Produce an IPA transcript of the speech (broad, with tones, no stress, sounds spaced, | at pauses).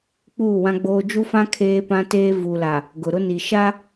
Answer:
k͡p uː˦˨ w ã˦ ɡ͡b oː˦ d͡ʒ u˦ f ã˦ kʰ eː˦ p ã˦ t eː˦ v u˨ l a˨ | ɡ ʊ˨ ɾ ʊ˦ n i˨ ʃ a˦